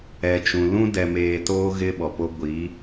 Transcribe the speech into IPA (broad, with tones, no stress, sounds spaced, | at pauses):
ɛ˨ t͡ʃ ũ˨ l ũ˦ d ɛ˨ m eː˨ t oː˦ ɣ ɪ˦ ɓ ɔ˨ p o˦ ɡʷ i˨˦